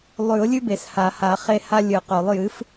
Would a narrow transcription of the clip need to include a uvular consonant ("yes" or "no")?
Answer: yes